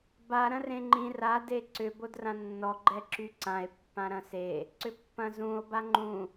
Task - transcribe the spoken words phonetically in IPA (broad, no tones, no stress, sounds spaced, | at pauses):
b a ɾ ɐ̃ r ẽ ŋ͡ǃ ĩ r a d e ǀ ʏ b o d r ã nː ɔ ɡ͡ǃ ɛ ǁ y ǀ ã e̯ pː ã ɾ ɐ̃ s e | ǀ ʏ pː ɐ̃ z ũ o̯ b a ŋ͡ǃ ũ